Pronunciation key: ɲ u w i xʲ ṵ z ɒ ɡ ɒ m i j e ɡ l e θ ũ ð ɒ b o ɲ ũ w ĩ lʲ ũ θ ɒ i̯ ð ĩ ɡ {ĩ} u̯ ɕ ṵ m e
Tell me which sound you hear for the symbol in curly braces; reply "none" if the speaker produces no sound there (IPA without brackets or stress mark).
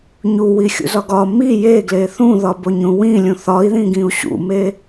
ĩ